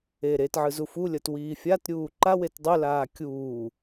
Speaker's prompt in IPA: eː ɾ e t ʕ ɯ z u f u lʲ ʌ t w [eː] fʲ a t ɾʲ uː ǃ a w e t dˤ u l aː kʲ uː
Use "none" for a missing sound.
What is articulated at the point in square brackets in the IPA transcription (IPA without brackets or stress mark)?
iː